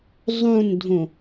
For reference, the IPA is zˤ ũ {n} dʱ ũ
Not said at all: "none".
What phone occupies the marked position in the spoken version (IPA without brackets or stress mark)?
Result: n